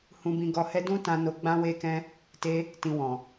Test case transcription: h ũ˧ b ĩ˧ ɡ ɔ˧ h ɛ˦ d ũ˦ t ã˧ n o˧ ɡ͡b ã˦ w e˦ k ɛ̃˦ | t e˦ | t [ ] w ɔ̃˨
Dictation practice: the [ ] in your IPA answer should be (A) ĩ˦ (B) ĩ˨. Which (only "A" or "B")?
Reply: B